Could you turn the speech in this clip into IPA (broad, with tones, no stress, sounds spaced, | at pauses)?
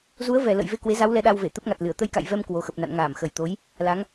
z u˨˦ ə̯ v ɛ˨˩ l ə̰˧˨ j v e˧ k w e˨˦ z a˨˦ w l ɛ˨˦ ɗ a˧ w v e˧˩ t̪ ə˦˥ p̚ ŋ a˨˩ t̚ l ɨ˧˩ ə̯ t̪ ə˧ j k a̰˧˨ j v ɛ˧ m k w o˨˩ x ə˨˩ p̚ n a̰˧˨ n ŋ aː˧˩ m x ə˨˩ j t̪ o˨˦ j | l a˨˦ ŋ